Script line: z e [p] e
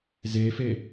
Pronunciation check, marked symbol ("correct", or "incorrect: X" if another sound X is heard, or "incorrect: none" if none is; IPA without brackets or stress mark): incorrect: f